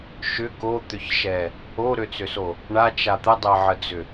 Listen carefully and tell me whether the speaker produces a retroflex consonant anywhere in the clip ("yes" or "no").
yes